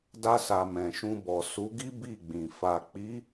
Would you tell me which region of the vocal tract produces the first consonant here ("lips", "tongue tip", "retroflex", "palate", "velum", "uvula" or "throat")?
tongue tip